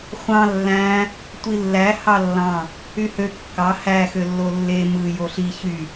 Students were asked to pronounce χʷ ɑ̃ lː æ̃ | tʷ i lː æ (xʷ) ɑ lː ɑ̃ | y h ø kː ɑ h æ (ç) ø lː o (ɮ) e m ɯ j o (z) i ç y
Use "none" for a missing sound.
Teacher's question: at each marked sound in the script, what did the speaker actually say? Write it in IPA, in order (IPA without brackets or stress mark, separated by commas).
h, x, lː, ɬ